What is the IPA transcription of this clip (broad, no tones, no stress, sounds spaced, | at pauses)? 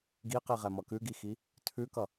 ɡ i q i ʁ ɛ m ʌ k ʉ ɡ i x i | tʰ ʉ k ʌ